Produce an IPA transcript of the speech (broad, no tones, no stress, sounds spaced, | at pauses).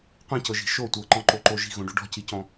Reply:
qʷ ĩ c ɤ ʒ i̤ ʃ o tʷ ɤ ǃ ɔ̃ ǃ o ǃ o ʒ i̤ ɣ õ ɖ o ɖ ɔ̤ c i c ɔ̃